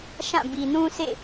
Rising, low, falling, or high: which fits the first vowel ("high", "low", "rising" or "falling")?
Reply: falling